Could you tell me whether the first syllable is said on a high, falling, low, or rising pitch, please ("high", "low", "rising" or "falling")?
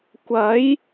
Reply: rising